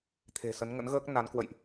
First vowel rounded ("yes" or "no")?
no